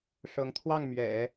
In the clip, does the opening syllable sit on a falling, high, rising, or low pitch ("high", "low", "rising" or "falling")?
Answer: rising